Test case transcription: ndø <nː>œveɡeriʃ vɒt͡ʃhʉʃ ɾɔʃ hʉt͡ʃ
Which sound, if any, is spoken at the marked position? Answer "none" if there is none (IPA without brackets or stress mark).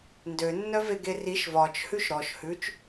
nː